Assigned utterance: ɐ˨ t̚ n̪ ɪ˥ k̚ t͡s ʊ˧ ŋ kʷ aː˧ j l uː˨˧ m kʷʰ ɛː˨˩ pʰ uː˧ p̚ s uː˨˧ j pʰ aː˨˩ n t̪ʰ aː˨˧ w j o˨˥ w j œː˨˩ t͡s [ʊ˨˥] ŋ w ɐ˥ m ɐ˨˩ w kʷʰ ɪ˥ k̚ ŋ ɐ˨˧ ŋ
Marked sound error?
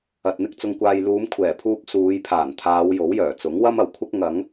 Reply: no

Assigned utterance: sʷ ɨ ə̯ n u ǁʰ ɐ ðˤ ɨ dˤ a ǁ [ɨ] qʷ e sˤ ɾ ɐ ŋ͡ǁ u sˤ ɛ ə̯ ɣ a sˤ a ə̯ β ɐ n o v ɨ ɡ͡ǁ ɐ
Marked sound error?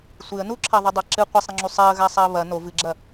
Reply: no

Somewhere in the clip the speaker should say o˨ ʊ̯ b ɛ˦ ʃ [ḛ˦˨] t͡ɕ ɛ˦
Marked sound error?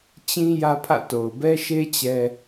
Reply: yes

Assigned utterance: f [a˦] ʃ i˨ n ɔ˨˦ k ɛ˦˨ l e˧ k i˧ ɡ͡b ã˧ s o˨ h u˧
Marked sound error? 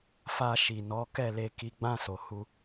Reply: yes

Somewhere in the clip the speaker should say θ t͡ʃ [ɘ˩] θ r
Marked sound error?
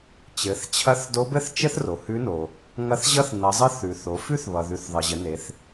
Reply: yes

